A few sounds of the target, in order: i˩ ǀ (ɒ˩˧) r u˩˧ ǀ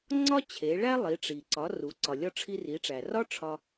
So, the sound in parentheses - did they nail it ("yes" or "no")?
yes